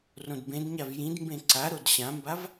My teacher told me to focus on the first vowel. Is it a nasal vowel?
yes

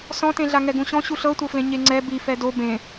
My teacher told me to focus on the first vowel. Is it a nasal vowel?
yes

